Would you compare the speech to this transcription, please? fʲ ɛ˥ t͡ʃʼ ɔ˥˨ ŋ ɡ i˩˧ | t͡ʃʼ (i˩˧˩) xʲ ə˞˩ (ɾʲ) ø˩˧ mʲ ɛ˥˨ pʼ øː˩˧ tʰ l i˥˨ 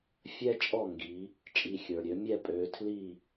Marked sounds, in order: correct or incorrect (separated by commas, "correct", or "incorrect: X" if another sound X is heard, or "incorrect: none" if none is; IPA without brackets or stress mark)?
correct, correct